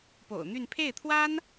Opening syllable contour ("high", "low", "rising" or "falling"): low